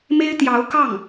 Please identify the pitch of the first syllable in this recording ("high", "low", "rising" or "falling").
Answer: high